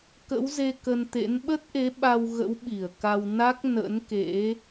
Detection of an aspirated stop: absent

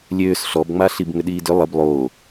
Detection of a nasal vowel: absent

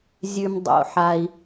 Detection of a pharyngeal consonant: present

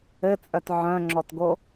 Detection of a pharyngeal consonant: present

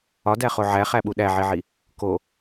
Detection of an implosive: present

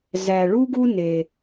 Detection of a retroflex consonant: present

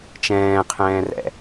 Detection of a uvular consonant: present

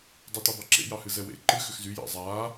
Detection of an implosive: absent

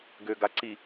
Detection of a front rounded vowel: present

